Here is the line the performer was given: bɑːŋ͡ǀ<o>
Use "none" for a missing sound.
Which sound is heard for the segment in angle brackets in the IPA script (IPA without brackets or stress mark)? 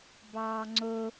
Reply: o